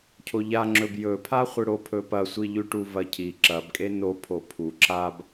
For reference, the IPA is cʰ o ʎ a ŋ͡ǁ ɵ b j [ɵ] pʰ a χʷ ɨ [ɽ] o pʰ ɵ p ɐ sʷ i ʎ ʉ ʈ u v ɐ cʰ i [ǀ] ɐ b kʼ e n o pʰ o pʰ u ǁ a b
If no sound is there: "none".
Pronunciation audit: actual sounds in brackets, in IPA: ɵ, ɽ, ǁ

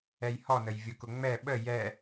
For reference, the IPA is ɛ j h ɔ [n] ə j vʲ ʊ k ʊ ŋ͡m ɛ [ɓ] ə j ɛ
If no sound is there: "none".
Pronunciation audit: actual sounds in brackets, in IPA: n, ɓ

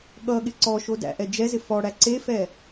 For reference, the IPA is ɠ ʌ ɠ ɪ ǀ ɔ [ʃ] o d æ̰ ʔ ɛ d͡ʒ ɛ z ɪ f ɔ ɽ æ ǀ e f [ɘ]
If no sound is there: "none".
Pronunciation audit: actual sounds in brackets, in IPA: ʃ, ɛ

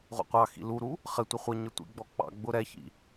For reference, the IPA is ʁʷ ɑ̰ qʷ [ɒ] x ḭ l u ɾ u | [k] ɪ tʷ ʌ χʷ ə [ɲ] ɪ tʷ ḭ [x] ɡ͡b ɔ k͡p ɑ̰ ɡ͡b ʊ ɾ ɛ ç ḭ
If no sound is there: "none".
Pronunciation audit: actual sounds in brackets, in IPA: ɑ, χ, ɲ, none

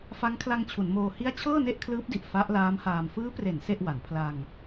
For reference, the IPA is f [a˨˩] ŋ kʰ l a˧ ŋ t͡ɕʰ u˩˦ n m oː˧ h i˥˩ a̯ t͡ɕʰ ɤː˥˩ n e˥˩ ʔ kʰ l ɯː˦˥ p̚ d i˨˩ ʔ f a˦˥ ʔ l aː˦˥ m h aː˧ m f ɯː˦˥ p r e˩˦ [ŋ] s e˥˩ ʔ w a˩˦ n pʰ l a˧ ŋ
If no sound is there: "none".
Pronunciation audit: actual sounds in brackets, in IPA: a˦˥, n

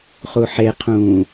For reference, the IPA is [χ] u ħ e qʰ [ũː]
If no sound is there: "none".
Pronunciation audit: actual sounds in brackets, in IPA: χ, ũː

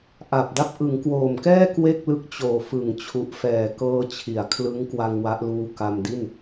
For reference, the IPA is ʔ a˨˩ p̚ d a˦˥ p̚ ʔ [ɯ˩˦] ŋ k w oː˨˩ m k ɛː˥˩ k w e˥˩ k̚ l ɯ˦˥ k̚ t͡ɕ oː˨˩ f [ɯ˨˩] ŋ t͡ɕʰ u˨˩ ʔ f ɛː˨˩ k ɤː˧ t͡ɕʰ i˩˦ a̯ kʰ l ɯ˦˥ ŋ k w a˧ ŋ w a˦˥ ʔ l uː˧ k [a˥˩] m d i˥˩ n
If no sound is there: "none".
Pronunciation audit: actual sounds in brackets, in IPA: ɯ˩˦, ɯ˨˩, a˧

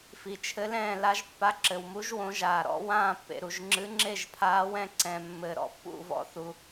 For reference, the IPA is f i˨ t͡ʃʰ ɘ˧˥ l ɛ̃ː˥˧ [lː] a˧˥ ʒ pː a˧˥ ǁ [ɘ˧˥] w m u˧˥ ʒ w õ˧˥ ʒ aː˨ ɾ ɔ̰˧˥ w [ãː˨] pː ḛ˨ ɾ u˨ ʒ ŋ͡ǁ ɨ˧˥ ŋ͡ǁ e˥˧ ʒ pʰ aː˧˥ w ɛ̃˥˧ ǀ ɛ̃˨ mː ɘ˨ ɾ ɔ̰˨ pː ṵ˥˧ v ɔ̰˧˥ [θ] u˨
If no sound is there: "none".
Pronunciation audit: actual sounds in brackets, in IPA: l, ɘ˨, ãː˥˧, θ

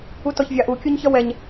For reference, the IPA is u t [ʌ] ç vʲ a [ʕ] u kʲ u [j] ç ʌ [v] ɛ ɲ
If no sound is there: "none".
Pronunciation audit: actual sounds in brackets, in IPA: ɔ, ʔ, ɲ, w

